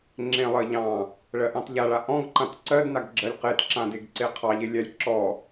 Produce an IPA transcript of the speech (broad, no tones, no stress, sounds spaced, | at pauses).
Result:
ŋ͡ǁ ẽ lˠ ɜ ʎ ɑ̃ | ɭ ɜ ʔ ɑ̃ t ʎ a ɭ a ʔ ɔ̃ ɡ ǃ ã t ǀ ɜ d n a ɡ ɡ͡ǁ ɜ lʲ q e t ǁ ã d e ɡ ǀ e qʰ ɑ ʎ e lʲ a lʲ ǁ ɔ